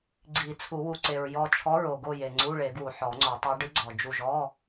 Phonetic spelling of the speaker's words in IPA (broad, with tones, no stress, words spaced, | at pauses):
ɡ͡ǀi˨˩˦t͡sʰu˨˩˦wu˨ ǀe˨ɹjɔ˦˨ t͡ʃʰɔ˧˥ɹo˨ɡo˦˨je˨ ŋ͡ǀu˧˥˧ɭe˨˩˦ɡwu˨ ħɔ˨˩˦ŋ͡ǀo˨˩˦tˤe˧˥ ɖɨ˧˥ɡ͡ǀɔ˨d͡ʒu˦˨ʒ ɔ˧˥˧